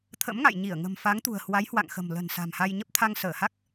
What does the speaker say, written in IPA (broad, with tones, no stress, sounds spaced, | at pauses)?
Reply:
t̪ʰ ə̰˧˥ m ŋ a̰˧˨ j ɲ i˧˩ ə̯ ŋ ə̤˨˩ m f a˨˦ ŋ t̪ ṳ˨˩ ə̯ h w a˨˦ j h w a̰˧˨ ŋ x ə̤˨˩ m l ə̤˨˩ n s a̤˨˩ m h a˧ j ɲ ə˦˥ p̚ t̪ʰ a˧ ŋ s əː˧˩ h a˦˥ k̚